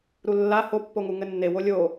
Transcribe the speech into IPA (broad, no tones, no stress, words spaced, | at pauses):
ɾulːa hopːoŋu ŋɘnːewo lʲo